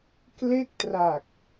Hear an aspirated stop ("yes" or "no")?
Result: no